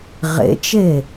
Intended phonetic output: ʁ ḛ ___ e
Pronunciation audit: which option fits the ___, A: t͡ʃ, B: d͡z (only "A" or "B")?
A